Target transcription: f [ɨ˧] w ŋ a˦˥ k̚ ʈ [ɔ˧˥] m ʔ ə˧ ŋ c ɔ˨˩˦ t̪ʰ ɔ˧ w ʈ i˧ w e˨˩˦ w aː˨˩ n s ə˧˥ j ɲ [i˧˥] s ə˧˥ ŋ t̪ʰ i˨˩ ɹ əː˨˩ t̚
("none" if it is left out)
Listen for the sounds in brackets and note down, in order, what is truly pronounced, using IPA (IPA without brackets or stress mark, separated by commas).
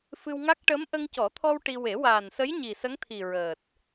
ɨ˧, ə˧˥, i˨˩